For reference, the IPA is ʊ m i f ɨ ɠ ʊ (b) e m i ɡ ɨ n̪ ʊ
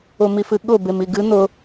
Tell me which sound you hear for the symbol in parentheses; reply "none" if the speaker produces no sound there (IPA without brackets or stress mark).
b